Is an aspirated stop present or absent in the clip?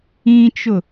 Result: absent